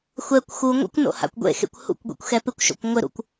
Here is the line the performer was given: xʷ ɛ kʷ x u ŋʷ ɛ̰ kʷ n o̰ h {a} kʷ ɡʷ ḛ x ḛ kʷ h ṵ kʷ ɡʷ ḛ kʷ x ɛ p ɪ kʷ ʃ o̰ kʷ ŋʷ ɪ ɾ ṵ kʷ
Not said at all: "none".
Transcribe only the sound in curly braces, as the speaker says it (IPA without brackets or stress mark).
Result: a̰